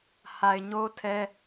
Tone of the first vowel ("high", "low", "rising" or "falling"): low